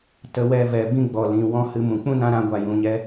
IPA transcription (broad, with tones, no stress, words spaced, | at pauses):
tə˧wɛ˧ vɛ˨bĩ˧ ɡ͡bɔ˨lĩ˨ wɔ̃˦hɨ˧mũ˨ k͡pũ˦nã˧ɾã˧ ɡʷa˨jũ˨ɲɛ˧